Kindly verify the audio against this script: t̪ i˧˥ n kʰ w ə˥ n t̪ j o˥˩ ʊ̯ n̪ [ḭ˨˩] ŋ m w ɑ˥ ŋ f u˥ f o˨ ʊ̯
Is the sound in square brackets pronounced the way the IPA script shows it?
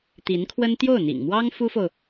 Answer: yes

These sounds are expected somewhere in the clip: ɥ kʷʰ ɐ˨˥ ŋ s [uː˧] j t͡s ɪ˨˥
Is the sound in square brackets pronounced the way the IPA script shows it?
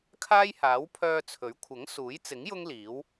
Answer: no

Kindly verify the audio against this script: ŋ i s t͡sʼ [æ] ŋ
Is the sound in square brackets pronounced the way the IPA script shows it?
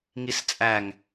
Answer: yes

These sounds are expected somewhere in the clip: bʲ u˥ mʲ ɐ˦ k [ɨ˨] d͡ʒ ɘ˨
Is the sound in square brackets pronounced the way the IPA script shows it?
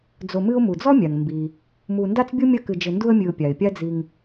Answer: yes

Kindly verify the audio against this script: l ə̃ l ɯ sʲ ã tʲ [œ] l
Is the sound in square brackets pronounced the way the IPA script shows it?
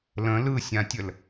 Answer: no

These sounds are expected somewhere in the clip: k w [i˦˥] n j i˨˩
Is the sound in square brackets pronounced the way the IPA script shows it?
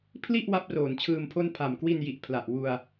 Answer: no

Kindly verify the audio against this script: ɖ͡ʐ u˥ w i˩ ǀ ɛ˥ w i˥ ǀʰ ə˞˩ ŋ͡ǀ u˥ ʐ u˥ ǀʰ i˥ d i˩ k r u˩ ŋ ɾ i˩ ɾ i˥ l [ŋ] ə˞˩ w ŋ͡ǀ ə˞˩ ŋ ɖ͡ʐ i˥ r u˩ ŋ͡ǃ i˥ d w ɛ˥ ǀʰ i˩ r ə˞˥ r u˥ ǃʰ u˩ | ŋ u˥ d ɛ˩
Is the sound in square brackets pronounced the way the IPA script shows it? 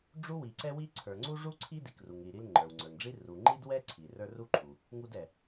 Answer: no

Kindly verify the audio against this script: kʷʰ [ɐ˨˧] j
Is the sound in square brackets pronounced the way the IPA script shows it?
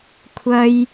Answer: no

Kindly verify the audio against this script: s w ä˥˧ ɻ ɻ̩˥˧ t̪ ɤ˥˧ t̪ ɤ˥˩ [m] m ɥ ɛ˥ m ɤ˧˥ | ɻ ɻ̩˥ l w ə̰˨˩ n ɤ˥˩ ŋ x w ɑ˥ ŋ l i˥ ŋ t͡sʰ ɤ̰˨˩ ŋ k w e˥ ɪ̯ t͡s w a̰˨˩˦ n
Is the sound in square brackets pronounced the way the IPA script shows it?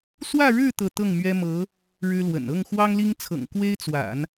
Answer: no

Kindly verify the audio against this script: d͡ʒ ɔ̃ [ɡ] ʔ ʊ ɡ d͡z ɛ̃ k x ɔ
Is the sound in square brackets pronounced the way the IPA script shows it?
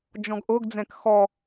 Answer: yes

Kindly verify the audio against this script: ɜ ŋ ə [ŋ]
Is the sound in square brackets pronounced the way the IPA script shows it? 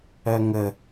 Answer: no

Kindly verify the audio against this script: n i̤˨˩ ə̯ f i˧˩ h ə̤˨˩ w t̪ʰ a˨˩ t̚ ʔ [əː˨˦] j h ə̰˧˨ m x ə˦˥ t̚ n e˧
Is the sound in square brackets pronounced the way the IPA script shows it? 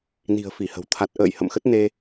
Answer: no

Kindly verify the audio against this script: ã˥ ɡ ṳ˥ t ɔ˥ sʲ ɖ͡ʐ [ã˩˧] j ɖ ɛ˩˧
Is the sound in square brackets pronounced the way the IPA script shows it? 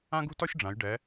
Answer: yes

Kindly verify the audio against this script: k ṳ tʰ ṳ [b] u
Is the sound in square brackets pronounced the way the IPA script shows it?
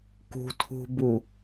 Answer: yes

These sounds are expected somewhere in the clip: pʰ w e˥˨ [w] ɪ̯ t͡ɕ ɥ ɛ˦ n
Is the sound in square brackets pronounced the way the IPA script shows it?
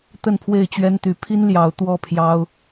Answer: no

